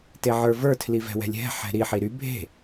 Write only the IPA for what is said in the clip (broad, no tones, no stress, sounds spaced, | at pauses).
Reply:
t e ʕ ə˞ v ə˞ tʰ l i v ɛ̤ w ɛ̤ lʲ ɦ ɛ̤ ħ ɛ̤ ɾ i ħ i ɾ y bʱ e̤